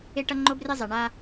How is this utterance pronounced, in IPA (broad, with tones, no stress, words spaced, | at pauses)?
e˦ʈʌ˦ŋ͡ǃo˦ bre˦zˤɛ˨ ɳa˦